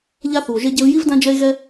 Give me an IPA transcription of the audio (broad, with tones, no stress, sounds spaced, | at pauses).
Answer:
ʎ a˦ θ u˨ o̯ ʒ e˦ ɟ e˧ v j i˦ v d ã˦ d͡ʒ ɛ˦ e̯ ɣ ɛ˦